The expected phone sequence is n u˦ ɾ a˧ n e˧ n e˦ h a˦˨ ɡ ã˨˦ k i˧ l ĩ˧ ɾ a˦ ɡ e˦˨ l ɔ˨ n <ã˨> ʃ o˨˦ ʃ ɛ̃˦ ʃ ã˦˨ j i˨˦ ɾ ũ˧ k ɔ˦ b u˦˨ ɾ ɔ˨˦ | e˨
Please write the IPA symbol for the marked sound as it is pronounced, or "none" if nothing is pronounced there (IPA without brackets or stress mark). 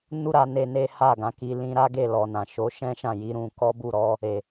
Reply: ã˨